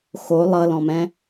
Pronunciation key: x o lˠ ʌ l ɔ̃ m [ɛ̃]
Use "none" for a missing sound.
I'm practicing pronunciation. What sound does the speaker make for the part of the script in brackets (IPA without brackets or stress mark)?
ɛ̃